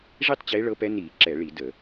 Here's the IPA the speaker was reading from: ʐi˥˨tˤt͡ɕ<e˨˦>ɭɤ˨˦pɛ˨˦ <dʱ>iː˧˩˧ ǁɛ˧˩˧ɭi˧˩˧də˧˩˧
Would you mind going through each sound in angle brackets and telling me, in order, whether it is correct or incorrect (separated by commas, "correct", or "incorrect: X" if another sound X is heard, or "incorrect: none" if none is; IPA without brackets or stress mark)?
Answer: correct, incorrect: n